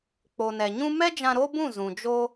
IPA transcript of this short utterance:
k͡p o˨ n ɛ˨ ɲ ũ˦ m ɛ˦ d͡ʒ ã˧ ɾ o˦ b ũ˦˨ z ũ˨ d͡ʒ o˦

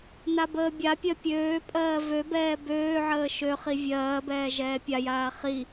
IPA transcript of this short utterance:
n a b əː bʲ a pʲ ɜ pʲ øː pʼ ɜː v ø b ɛː b øː ʕ əː ʃ ø χ i vʲ ɜː b ɛː ʒ ɛː pʲ a j aː χ i

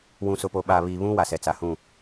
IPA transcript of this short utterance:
w ũ˨ s ʊ˨ p o˨ ɓ a˨ β i˨ β ũ˦ w a˨ s ɛ˨ t͡s a˨ h ũ˦˨

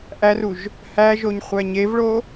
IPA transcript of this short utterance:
ʔ æ r u ʒ | h æ ʒ o ɲ χʷ æ ɲ e v ɭ o

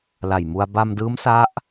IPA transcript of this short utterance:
l a˨˩ j m u˧ a̯ b a˧ m d ɯː˦˥ m s a˦˥ ʔ

